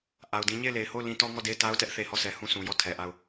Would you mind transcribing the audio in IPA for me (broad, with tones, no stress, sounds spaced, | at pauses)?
ʔ a˨ ʊ̯ d ĩ˦ ɲ e˦˨ ɪ̯ l e˨ ɪ̯ h o˦˨ ʊ̯ l ĩ˦ t ɔ˦ ŋ ɔ˦˨ d e˦˨ ɪ̯ t a˦ ʊ̯ t ɛ˦ ʔ θ e˨ h ɔ˦˨ sʰ ɛ˨ h ũ˦˨ s ũ˨ j ɔ˦˨ tʰ ɛ˨ ʔ a˦˨ ʊ̯